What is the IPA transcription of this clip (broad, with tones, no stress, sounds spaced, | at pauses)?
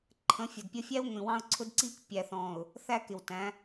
ǃʰ ə̃˨˦ fʲ ʊ˨ d pʲ ə˦ fʲ æ˦ w ŋʷ ĩ˨ w ɑ̃˦ ʊ̯ ǀʰ ʊ˦ d ǀ iː˦ k pʲ æ˨ θ ɔ̃ː˨ ʊ̯ | θ æ˦ k ɪ˨ w t æ̃˨˦